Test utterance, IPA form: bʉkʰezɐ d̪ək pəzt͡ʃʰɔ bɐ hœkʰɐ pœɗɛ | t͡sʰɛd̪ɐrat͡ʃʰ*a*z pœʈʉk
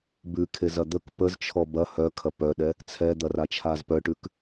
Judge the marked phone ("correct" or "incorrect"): correct